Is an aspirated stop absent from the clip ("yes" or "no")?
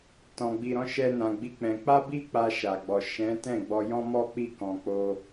yes